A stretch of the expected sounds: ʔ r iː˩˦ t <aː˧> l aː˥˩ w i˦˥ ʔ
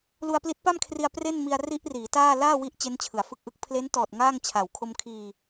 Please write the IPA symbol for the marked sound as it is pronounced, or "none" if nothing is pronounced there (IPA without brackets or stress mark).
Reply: aː˥˩